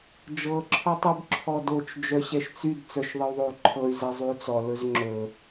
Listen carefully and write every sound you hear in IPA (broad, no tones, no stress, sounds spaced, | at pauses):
d͡ʒ ɤ ǁʰ ɔ tˤ y b ǁʰ ɔ d o t͡ʃ d͡ʒ œ ɕ ɛ ʃ t͡s y d t͡s œ ʃ ðˤ ə y̯ ðˤ o y̯ ǃʰ ɤ y̯ z ɛ zˤ y u̯ t͡s ɔ l ɵ z ŋ͡ǁ ɵ